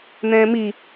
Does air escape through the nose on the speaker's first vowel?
yes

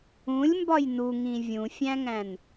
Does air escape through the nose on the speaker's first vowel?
yes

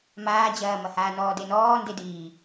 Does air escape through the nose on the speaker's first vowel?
no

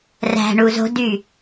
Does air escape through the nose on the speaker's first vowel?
no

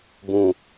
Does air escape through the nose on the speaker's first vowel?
yes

